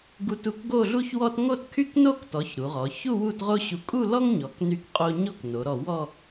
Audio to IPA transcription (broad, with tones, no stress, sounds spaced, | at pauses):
ɡ u˧ t u˧ k ɡ o˥˧ ɮ u˥ ç w ɔ˥ t ŋ o˥˧ t kʰ y˥ k n o˥˧ k t ɔ˩˧ ç ɾ u˩˧ ʁ ɔ˩˧ ç u˥˧ w u˥˧ t ʁ o˥ ɕ u˧ kʼ u˥˧ l ɔ˥ ŋ ɲ ɔ˩˧ k n y˧ k qʼ o˧ ɲ ɔ˥˧ k n o˩˧ ɾ ɔ˧˩ w ɔ˥˧